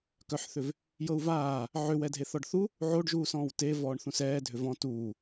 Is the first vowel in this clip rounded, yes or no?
yes